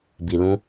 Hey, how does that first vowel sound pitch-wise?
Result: low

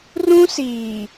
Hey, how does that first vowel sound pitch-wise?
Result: high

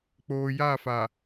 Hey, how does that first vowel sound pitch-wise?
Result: low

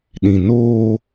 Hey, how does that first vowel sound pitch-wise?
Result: low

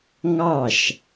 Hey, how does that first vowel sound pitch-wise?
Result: falling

